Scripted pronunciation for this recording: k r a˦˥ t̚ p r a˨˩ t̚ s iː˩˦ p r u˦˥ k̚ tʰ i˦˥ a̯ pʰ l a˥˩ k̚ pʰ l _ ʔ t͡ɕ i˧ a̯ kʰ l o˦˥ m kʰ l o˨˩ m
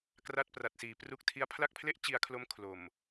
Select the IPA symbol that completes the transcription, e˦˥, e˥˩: e˥˩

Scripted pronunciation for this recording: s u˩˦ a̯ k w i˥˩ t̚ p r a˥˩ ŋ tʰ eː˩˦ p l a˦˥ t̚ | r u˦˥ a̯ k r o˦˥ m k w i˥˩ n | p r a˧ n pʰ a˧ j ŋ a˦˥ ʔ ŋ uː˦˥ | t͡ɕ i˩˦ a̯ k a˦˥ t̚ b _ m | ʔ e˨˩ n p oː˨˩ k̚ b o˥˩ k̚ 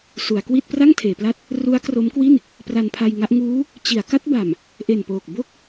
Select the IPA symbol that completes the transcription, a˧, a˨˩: a˨˩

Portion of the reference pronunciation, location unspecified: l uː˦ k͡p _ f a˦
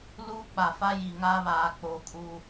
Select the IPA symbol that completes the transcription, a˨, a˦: a˨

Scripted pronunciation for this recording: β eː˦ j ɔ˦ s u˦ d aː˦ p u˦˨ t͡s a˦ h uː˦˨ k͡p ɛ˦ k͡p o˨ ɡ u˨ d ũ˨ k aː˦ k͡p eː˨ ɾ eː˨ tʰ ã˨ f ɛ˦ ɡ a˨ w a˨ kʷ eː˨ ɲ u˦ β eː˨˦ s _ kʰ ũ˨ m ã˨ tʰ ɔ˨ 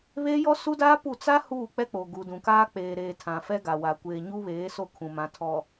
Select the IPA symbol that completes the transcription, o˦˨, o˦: o˦˨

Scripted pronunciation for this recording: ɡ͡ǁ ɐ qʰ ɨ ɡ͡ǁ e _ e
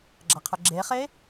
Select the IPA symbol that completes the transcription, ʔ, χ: χ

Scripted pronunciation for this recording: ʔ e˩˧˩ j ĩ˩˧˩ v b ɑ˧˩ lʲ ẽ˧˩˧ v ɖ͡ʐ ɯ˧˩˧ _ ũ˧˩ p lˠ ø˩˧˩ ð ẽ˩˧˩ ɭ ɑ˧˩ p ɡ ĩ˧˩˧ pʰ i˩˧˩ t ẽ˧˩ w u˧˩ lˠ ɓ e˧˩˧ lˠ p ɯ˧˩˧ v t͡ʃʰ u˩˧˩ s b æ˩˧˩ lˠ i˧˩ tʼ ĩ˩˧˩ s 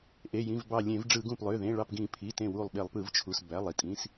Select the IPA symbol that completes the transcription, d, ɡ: ɡ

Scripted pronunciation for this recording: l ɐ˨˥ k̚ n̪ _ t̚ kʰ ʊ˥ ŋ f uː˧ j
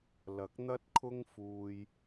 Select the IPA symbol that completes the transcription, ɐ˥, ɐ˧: ɐ˥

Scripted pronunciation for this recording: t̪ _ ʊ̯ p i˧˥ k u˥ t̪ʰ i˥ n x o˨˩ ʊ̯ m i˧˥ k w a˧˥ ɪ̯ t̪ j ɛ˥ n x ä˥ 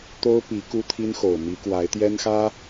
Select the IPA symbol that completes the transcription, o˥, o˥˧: o˥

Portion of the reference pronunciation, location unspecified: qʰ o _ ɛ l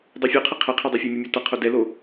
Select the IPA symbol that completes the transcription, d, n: d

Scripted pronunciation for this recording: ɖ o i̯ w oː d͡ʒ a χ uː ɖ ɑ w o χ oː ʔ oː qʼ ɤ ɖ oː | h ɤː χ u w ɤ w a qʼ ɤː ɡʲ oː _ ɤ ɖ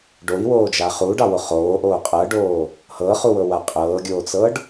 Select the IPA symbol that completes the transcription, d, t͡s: t͡s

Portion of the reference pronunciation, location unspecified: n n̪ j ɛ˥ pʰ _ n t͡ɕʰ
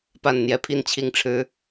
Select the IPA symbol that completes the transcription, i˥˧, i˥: i˥˧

